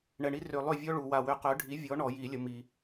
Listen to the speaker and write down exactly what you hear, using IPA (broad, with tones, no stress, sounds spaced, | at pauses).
ɳ ɛ˨ ɳ i˦ r ø˨ lˠ ø˦˨ vʲ ɔ˦ ɭ u˨ w a˨ w ø˨˥ q œ˨˥ ɖʱ i˨˥ vʲ ɔ˨˥ ɳ ɔ˨˩˦ j i˨˩˦ lʲ ə˨ m i˨